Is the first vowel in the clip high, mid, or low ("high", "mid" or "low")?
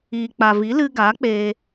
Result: high